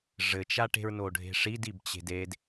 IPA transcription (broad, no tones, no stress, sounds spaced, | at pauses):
ʐ ɘ t͡ʃ a ʈ e̤ ɹ n o ɖʱ e̤ ʂ i d i b t͡ɕ e̤ d e d